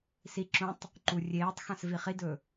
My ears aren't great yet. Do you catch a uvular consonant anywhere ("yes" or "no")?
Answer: yes